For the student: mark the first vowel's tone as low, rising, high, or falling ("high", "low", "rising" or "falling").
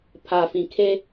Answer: low